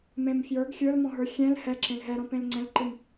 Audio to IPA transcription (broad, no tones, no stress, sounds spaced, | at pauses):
m ẽ m f j ə˞ ɡ xʲ ə˞ l m ɔ̃ ɦ ə˞ xʲ ɛ̃ l h ɛ ǁ ẽ l ɦ ɛ ɾ ɔ̃ p ẽ l ŋ͡ǀ ɛ̃ l ǃ ɨ m